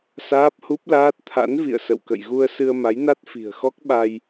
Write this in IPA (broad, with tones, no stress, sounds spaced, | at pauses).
s aː˦˥ p̚ h u˦˥ p̚ l aː˦˥ t̚ t̪ʰ a̰˧˥ n v ḭ˧˨ ə̯ s ə̰˧˨ w k ə̰˧˨ j ɣ u˧ ə̯ s ɨ˧ ə̯ m a˨˦ j n a˦˥ t̚ f i̤˨˩ ə̯ x ɔ˦˥ k̚ ɓ a˧ j